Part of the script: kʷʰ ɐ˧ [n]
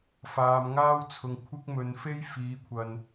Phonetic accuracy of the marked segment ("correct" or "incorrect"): correct